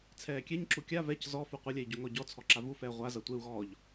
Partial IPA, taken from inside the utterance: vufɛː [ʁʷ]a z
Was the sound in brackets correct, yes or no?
yes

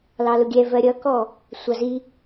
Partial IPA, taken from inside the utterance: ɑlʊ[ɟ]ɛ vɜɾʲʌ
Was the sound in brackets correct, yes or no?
no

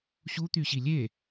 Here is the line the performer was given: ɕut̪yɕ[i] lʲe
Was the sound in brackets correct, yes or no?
yes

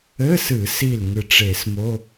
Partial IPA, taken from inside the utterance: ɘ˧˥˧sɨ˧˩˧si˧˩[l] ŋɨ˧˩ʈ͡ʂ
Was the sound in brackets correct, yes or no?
yes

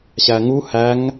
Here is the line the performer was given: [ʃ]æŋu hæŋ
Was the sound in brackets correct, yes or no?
no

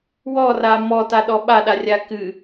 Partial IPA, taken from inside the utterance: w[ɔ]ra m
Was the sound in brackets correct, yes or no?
yes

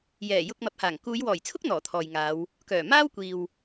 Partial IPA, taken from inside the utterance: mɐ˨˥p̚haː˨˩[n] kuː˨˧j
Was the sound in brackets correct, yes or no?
no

